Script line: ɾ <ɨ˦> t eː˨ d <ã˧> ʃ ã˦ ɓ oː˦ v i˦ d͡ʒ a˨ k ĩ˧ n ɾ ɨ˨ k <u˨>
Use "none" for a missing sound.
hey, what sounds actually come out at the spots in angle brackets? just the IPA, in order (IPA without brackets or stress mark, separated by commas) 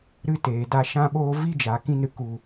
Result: ɨ˦, a˧, u˨